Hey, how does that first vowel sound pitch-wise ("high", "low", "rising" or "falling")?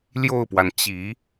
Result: falling